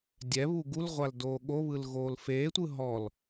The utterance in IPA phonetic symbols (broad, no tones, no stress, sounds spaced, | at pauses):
dʲ ɛ β u ɡ u l ʁʷ a l d oː ɠ o β ɯ l ɣ oː l f eː tʷ ɯ ɦ ɔ l